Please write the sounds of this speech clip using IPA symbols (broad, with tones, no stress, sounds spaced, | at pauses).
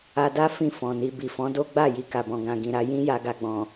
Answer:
a˧ d a˦ f ĩ˦˨ f ɔ̃˨ n i˧ b i˨ f ɔ̃˨˦ d o˦ ɡ͡b a˦˨ j i˧ k a˨ b ɔ̃˨ ɡ ã˨ ɡ ĩ˨ ɾ a˨˦ j ĩ˦ j a˧ ɡ a˨ ɡ͡b ɔ̃˨